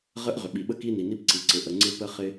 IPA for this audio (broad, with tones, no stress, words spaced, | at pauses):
ʁə˥ʔ ʁʏ˩ɓi˩ɓə˥ ki˥ni˩ni˥pǀi˩ ǀɪ˩ʔə˩ ŋ͡ǀɪ˥pə˥χɪ˥